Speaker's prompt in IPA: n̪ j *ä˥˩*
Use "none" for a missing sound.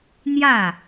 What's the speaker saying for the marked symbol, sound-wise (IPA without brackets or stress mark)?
ä˥˩